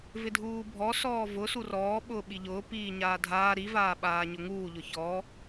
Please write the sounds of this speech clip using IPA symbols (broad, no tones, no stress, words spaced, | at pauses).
vɪdʱuːbʱɔ sɔːvʊ surɔː ɓʊːɓiʎʊː piːɲaːdʱaː ɾi vaːɓaːɲʊŋuː ʎʊçɔ